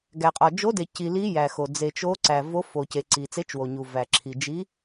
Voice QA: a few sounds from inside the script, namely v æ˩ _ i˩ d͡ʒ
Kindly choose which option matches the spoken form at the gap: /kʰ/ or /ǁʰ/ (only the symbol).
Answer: ǁʰ